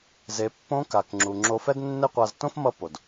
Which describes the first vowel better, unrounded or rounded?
unrounded